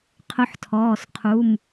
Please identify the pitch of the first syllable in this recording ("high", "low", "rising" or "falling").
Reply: rising